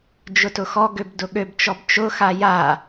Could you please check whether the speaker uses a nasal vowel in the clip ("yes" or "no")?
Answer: no